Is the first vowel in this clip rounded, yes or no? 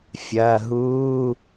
no